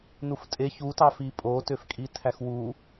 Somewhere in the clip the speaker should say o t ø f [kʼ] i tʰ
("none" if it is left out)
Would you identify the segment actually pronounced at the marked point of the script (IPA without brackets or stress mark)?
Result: kʼ